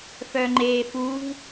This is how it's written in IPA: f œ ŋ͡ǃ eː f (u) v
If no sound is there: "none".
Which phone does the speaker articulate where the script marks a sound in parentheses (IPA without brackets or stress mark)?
u